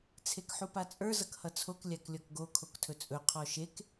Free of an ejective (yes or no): no